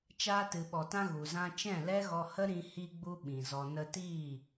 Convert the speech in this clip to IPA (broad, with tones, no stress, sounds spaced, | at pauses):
t͡ʃ aː˧ t ɨ˨ ɓ ɔ˨ t ã˧ ɣ u˨ z ã˧ t͡ʃ ɛ̃˦˨ l ɛ˦ ɣ ɔ˧ h ə˦ ɾ ĩ˧ h i˧ ɡ͡b u˧ ɓ ĩ˨ z ɔ˧ n ə˧ t iː˦˨